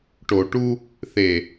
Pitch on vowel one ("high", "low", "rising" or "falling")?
low